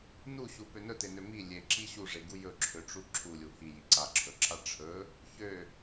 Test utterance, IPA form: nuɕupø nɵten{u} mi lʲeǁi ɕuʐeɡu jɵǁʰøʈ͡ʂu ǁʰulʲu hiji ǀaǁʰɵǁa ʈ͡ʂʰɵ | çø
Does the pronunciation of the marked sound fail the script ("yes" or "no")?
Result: yes